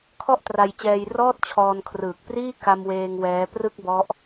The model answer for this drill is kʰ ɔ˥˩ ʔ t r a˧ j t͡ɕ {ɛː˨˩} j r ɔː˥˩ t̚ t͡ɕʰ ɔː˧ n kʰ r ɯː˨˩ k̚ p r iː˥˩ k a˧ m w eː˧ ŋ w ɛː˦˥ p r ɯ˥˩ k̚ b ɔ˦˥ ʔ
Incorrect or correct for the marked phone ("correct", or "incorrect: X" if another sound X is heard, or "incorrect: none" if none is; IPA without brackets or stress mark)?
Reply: incorrect: ɛː˧